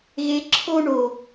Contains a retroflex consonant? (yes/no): yes